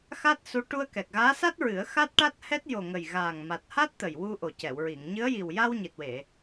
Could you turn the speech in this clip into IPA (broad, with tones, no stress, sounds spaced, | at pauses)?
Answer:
x a˦˥ t̚ s u˧˥ ʈ u˧ ə̯ k ɛ˨˩ k̚ ɣ aː˧˥ s a˦˥ t̚ ɹ ɨ˨˩˦ ə̯ x a˦˥ t̚ ʈ a˦˥ t̚ h ɛ˦˥ t̚ j o˨˩ ŋ ə˨˩ j ɣ aː˨˩ ŋ m a˨˩ t̚ h a˦˥ t̚ t̪ ə˨˩ j w u˧ ʔ o˨˩ c ɛ˨˩˨ w ɹ i˨˩˨ ŋ ɲ ɨ˧˥ ə̯ j i˨˩ w j a˧ w ɲ i˨˩ t̚ w e˨˩˨